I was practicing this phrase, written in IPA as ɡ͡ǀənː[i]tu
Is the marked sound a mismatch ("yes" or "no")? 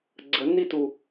no